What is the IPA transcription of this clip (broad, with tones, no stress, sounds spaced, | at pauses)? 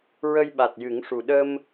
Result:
ɹ ə˧ j ɓ a˨˩ t̚ j ɨ˨˩˦ ŋ ʂ u˨˩ ɗ ə˧ m